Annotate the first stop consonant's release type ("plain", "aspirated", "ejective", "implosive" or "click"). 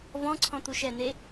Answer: click